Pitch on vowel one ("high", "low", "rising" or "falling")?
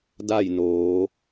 falling